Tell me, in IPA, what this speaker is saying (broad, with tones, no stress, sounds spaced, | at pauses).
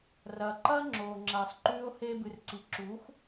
r ɐː˩ ǃ ɐː˥ ŋ͡ǁ oː˩ ŋ͡ǁ ɐː˩ sˤ ǃ ʉː˧ o̯ h eː˧ b ɨ˩ r ǀ i˩ ǁ uː˩˥ x